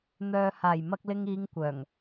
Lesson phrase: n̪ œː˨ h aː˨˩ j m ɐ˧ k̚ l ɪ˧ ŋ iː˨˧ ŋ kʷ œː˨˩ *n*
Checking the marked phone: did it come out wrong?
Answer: yes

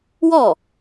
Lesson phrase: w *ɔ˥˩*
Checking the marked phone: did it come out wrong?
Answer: no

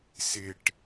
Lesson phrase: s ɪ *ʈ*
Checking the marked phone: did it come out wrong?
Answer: no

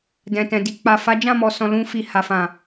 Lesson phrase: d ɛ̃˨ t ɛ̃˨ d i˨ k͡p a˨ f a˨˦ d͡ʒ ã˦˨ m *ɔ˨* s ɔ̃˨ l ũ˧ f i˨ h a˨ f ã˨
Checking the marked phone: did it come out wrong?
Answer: no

